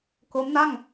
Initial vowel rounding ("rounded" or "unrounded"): rounded